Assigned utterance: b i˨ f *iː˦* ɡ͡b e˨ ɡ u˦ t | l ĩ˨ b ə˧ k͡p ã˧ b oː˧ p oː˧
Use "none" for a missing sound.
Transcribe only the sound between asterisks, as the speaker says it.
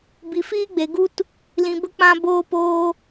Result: iː˦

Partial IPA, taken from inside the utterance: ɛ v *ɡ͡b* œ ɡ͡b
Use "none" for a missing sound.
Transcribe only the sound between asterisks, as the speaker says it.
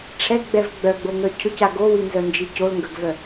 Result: ɡ͡b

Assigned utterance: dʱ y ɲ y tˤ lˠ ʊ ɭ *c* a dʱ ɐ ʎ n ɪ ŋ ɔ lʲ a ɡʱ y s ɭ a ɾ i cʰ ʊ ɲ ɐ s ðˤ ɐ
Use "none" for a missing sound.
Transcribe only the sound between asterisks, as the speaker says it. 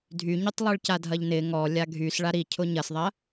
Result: c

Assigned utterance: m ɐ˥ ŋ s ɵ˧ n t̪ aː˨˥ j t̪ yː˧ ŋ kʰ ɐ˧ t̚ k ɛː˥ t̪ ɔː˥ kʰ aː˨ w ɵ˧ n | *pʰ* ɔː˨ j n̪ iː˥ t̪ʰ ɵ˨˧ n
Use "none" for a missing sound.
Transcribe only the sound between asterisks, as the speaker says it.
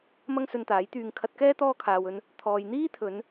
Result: t̪ʰ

